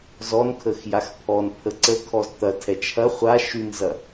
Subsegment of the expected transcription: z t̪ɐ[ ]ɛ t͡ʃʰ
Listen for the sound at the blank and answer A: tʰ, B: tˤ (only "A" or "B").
A